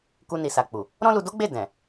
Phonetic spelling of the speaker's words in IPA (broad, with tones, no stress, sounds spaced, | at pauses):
k u˧ n i˨ s a˨ k͡p u˨ | ɾ ɔ̃˦ l u˧ d o˦ ɡ͡b e˦˨ d ɛ̃˨